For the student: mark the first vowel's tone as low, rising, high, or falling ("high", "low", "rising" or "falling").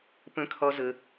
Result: rising